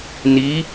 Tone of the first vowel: rising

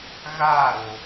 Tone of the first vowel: falling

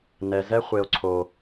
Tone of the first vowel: high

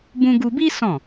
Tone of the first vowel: high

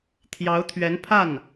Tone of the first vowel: rising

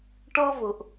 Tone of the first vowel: high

